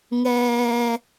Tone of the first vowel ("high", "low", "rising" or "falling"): low